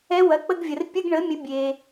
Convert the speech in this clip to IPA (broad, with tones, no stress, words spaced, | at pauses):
ɛ˧˥wɐ˩˧˩k͡pə˧˥˧ɡvʲə˩r pʲə˧˥˧ɡɳə˩˥ mʲə˩˥bʲe˩